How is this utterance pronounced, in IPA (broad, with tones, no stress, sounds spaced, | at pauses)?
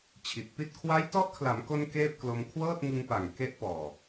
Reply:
t͡ɕʰ i˨˩ t̚ p i˥˩ t̚ kʰ w a˦˥ j t ɔ˦˥ ʔ kʰ l a˩˦ m k o˧ n k eː˥˩ p̚ k l o˧ m kʰ w ɤː˥˩ t̚ ŋ ɯ˧ ŋ p a˨˩ ŋ k e˦˥ ʔ p ɔː˨˩